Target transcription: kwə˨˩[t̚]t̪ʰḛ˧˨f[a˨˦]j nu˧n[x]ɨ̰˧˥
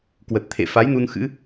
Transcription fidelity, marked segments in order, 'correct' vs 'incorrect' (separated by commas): correct, correct, correct